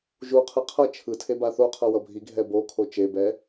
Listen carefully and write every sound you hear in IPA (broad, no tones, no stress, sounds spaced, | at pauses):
ʒ u qʰ ɯ qʰ ʌ t͡ʃʰ ɯ tʰ e b a θ o qʰ ʌ w ʌ bʱ i ɡʱ ɛ b o kʰ o t͡ʃ e b ɛ